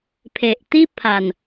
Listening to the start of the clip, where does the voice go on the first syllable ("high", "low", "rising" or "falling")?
low